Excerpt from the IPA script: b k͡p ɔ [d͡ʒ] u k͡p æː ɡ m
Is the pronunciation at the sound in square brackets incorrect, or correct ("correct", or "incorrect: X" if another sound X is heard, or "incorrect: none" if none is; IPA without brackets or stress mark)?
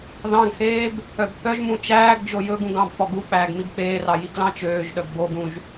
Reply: incorrect: ɡ